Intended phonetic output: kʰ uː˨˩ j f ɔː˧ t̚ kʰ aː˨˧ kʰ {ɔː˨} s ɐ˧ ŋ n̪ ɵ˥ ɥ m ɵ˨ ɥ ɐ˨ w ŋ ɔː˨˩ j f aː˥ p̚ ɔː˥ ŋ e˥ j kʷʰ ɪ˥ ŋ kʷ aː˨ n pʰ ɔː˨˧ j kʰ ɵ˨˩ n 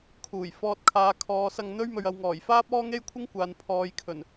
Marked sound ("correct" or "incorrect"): incorrect